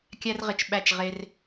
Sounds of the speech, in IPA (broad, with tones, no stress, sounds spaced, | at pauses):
kʲ æ˦ r ʁ ɪ˨ t͡ʃ ɓ æ˦˨ t͡ʃ ʁ e˦ r